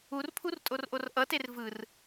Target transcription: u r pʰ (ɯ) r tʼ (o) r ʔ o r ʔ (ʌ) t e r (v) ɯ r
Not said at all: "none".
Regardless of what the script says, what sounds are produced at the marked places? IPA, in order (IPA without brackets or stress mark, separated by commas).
u, o, ʌ, v